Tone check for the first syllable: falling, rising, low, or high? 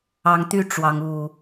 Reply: rising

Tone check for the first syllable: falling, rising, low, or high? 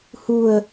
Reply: low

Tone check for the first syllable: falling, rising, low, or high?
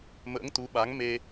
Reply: rising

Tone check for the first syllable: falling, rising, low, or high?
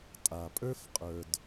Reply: low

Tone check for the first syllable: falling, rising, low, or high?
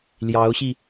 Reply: rising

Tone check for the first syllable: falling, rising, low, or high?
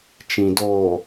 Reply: low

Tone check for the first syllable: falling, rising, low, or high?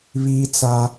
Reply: high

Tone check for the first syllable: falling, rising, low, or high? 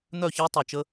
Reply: falling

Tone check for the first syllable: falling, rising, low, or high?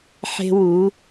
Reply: high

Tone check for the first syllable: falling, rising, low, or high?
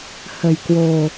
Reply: low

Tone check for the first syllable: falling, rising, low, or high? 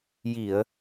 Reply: low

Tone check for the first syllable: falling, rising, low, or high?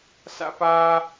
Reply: high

